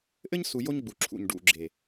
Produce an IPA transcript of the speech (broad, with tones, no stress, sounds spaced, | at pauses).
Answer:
ʔ ɘ˦ ɲ s u˨ j o˦ ɲ ɡ͡b u˨ ǁʰ ṵ˨ ɲ ɖ ṵ˨ ɡ͡ǁ e˨